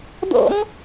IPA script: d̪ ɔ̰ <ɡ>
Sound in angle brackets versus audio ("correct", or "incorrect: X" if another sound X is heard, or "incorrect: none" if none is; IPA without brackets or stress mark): incorrect: ŋ